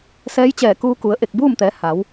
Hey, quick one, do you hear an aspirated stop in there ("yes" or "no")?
no